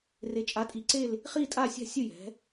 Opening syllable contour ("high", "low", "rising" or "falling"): rising